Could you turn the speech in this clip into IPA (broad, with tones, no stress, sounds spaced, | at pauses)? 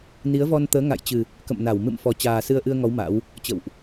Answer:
n i˨˦ ə̯ v ɔ˧ n t̪ əː˨˦ ŋ a̰˧˨ j t͡ɕ ɨ˨˩ | k ə̰˧˨ m n a˧˩ w m ɨ̰˧˨ m f ɔ˨˩ t͡ɕ aː˨˩ s ɨ˧ ə̯ ʔ ɨ˧ ə̯ ŋ ɔ˨˦ w m a̰˧˥ w | t͡ɕ ə̰˧˨ w ʔ